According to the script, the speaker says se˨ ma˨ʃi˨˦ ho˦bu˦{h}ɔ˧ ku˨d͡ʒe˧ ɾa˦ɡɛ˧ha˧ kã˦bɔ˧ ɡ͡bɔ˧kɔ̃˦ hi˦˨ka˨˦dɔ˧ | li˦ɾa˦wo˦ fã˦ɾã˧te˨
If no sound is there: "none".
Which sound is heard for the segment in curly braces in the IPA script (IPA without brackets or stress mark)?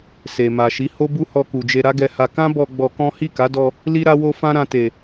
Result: h